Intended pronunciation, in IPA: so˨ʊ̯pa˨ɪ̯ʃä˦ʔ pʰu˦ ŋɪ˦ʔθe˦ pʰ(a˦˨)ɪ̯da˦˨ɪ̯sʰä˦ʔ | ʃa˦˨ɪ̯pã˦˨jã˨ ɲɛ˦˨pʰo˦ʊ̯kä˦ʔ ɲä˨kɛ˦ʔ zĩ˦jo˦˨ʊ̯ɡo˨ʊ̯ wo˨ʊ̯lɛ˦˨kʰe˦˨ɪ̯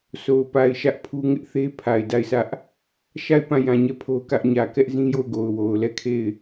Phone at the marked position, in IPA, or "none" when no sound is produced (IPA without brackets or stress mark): a˨